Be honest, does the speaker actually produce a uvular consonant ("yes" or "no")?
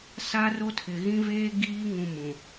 no